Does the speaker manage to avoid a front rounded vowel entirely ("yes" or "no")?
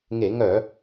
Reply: no